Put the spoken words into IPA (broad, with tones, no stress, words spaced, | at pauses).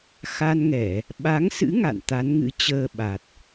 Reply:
xa˧nŋɛ˧˩˨ | ɓa˨˦ŋsɨ̰˧˥ ŋa̰˧˨nt̪a˨˦nŋɨ̰˧˥ t͡ɕəː˧ɓa˨˩t̚